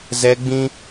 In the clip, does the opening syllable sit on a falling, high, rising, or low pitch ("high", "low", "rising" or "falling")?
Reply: high